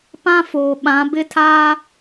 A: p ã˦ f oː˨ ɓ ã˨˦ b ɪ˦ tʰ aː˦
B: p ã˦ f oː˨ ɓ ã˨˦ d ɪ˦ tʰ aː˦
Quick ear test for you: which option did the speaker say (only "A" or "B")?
A